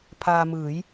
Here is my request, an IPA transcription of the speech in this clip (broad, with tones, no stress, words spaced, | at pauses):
pʰaː˧mɯː˩˦j